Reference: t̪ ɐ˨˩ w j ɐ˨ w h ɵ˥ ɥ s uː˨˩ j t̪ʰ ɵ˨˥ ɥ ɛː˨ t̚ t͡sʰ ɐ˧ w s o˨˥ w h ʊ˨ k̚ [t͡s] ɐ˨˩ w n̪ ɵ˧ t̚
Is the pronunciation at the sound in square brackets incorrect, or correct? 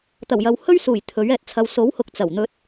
correct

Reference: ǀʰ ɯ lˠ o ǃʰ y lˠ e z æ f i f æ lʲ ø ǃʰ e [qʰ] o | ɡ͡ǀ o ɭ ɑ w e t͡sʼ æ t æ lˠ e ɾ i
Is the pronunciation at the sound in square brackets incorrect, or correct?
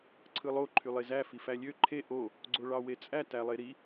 incorrect: ʔ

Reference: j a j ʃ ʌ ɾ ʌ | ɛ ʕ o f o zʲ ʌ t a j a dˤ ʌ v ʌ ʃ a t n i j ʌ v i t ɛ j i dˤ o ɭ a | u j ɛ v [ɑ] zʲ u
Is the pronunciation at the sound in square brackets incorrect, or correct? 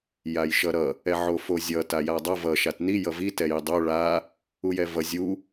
incorrect: ʌ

